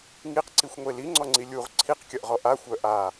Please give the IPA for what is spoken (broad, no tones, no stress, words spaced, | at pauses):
ŋiqǀixʷŋʷe liŋ͡ǀɔŋ͡ǀi lʲuʁ ǀʰiqkʲɐʔʁɔ ʔaxʷœ ʔa